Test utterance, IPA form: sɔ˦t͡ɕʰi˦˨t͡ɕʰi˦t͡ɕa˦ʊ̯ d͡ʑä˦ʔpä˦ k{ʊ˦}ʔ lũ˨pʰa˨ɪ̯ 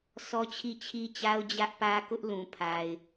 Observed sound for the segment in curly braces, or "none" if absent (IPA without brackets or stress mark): ʊ˦